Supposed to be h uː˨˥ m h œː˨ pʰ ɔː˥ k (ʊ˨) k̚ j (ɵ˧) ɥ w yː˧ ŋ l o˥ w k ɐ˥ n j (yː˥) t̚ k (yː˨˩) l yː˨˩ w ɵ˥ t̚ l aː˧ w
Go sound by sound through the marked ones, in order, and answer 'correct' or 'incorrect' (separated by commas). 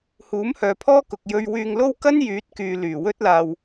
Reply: correct, correct, incorrect, incorrect